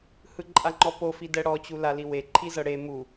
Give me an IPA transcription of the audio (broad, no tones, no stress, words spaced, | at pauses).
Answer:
hɯǃʼaŋ͡ǃɔpo fidɛɽɔt͡ɕu laliwe ǃʰizɤɽe mu